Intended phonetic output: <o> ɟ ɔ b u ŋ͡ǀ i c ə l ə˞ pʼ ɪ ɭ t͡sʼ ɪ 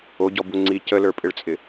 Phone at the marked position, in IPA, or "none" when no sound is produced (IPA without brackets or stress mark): o